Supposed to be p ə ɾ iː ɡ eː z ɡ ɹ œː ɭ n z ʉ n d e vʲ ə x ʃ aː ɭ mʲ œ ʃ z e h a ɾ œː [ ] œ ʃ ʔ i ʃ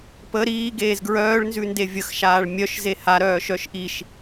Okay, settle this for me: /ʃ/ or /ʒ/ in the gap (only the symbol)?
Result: ʃ